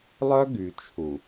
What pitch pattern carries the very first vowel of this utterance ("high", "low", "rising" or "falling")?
high